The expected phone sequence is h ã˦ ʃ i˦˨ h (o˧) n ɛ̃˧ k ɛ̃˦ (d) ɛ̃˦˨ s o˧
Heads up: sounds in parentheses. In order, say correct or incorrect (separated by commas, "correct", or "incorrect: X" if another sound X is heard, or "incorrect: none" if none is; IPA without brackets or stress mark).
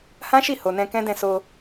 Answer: incorrect: o˨, correct